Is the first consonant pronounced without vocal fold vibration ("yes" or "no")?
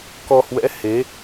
yes